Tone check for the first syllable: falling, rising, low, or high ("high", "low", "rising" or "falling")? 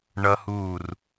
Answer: high